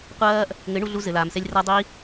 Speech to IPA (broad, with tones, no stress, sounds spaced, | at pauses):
qʷ ɐː˦ ʔ | ŋ ɘ˨˦ ɳ u˧ ɮ u˧ z ɘ˨ l aː˨ m s ɛ˧ lʲ r a˧ dˤ i˧